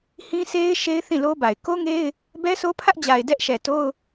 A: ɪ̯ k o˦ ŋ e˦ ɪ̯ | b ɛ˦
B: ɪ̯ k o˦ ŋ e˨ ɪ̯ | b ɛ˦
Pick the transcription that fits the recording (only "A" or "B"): A